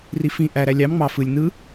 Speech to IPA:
r i f ĩ ʔ æ ɾ æ lʲ ɑ m ŋ͡m ɑ f ɯ lʲ n ɯ

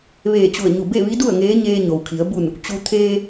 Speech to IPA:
ʋ eː˧˩ t͡ɕ u˧˩ ə̯ ɲ u˧˩ b e˥˨ ʋ i˧˥ d u˥˨ ə̯ ŋ eː˧˥ ɲ eː˧ ɲ o˩ w kʰ i˩˧ ə̯ b u˧˩ n | t͡ɕ u˧ t̪ʰ eː˧

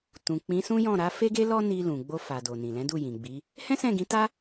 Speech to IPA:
t ũ˨ k͡p ĩ˨˦ s ũ˦ j ɔ̃˦˨ ɾ a˨˦ f e˦ ɡ e˦ l ɔ˦ n i˧ l ũ˨ ɡ͡b o˧ f a˨ d o˨ n ĩ˨ l ɛ̃˨˦ d u˦˨ j ĩ˨ ɡ͡b i˨˦ | h ɛ̃˦ s ɛ̃˦˨ ɡ ĩ˨˦ t a˦

